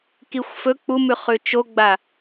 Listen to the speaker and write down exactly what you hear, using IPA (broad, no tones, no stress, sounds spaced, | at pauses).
k i xʷ f ɵ k͡p u m ʉ χ ʉ t͡ʃ o ɡ͡b a